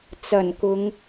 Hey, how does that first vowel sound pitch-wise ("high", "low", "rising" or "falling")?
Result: low